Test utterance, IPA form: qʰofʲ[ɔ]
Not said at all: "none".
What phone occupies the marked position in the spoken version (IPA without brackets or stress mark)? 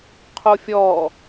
ɔ